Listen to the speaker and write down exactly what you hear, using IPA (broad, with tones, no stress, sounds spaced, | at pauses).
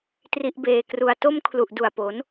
t r i˦˥ ʔ b eː˧ k r u˧ a̯ t o˥˩ m kʰ l u˨˩ ʔ d u˨˩ a̯ p o˩˦ n